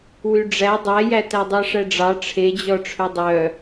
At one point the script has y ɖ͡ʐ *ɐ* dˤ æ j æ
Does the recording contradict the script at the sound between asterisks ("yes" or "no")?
yes